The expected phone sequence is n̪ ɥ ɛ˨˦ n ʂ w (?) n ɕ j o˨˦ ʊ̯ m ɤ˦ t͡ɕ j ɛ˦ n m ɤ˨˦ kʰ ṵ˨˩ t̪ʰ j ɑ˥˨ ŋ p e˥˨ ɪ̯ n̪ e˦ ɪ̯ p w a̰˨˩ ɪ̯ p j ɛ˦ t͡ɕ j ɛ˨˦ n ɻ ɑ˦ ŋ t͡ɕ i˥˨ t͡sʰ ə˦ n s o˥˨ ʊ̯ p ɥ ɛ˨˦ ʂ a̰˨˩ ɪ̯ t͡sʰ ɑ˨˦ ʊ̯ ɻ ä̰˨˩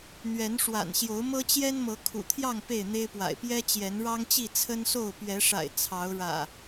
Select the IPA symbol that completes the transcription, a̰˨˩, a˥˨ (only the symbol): a̰˨˩